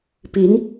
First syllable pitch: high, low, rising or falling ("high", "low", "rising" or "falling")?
rising